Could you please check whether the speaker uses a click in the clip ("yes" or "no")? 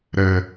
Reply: no